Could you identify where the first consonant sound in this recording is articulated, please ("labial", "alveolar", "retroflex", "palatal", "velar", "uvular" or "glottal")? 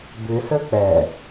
labial